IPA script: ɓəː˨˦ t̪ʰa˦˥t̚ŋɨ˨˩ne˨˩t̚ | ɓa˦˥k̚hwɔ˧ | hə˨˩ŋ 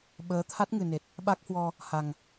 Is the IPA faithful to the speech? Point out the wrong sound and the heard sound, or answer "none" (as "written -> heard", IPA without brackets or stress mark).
ə˨˩ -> a˨˩